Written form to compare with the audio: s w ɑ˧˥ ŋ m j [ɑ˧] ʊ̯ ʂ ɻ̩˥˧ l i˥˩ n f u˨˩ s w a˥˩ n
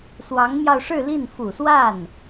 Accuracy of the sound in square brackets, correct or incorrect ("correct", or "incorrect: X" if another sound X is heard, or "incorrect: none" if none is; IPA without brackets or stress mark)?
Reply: correct